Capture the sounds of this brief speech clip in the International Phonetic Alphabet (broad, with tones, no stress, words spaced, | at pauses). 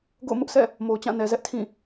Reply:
ɡo̰˦˨ʊ̯mʊ˦ʔsʰɛ̰˦˨ | mo˨ʊ̯t͡ɕã˦˨nɛ˨zɛ˦ʔ tʰĩ˦˨